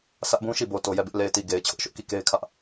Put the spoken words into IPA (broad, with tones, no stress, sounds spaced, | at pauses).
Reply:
s ä˦ ʔ b ũ˦ ʃ i˦˨ b o˨ t o˨ j ɛ˦˨ b ɪ˦ ʔ l e˨ ɪ̯ t i˨ ɡ e˨ ɪ̯ t͡ɕʰ ʊ˦ ʔ ʃ ʊ˦ ʔ k i˦˨ k e˦ ɪ̯ kʰ ä˦ ʔ